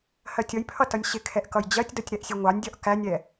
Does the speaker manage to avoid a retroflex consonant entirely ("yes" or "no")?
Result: yes